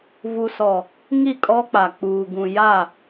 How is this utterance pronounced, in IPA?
vu˨sɔ˨ | ŋi˦˨kʼɔ˦k͡pa˨ k͡puː˨ ɡũ˨ja˦˨

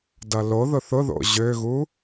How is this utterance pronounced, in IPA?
dʌloðʊθ ʊðo̰ ʑøɣu

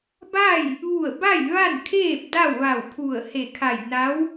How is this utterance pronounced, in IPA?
ba˥˨j | ʋu˧˩ə̯ba˥˨j ʋa˥˨nkʰeː˥˨p̚ da˥˨wʋa˧˩wpʰu˧˩ə̯ he˧˩kʰa˧˩j na˧˥w

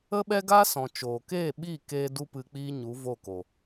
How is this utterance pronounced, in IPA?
ə˦ɓɛ˦ɡa˦ sɔ̃˨t͡ʃoː˨ keː˦˨ɓi˦˨keː˧ du˦pɨ˧k͡piː˦ ɲu˨˦vo˦˨ko˨

